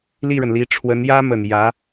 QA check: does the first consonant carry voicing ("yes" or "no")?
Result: yes